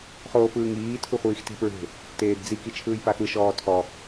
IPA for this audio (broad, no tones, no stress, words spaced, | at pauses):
χoːpɯːŋiː tʰuχʷiːxte̤pɹe̤ | teːdd͡zi kit͡ʃʰɯːjpaxɯ ʃɔːtʰɔ